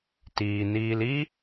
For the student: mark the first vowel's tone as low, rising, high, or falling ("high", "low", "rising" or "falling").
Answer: low